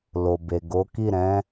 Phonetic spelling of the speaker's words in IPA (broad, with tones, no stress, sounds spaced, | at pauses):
l o˨ b e˨ ɡ o˨˦ k i˦˨ ɾ ɛ̃˨˦